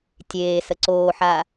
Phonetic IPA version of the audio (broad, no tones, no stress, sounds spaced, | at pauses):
tʲ eː s ə ǀ oː ħ a